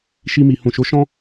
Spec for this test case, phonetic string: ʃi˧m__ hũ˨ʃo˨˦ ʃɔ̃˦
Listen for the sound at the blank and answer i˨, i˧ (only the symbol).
i˨